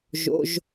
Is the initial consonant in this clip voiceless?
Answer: no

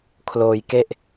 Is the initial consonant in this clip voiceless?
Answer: yes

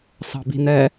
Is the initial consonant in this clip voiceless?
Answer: yes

